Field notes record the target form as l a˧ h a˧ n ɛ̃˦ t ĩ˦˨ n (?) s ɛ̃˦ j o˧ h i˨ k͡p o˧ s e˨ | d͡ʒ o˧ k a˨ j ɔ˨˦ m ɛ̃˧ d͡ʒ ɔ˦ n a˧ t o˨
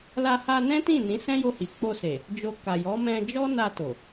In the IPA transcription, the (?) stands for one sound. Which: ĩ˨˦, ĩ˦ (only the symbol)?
ĩ˨˦